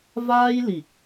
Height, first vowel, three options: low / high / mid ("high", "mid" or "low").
low